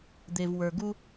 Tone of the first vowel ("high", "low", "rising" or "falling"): low